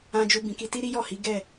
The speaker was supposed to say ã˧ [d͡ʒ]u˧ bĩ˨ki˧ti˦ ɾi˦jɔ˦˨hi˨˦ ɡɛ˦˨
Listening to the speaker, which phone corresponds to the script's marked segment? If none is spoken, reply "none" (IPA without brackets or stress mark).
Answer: d͡ʒ